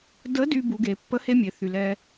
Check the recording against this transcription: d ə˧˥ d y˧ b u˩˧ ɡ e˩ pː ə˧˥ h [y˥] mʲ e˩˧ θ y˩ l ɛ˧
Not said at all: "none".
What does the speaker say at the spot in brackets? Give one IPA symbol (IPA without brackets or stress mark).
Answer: e˥